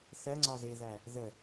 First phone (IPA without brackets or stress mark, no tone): θ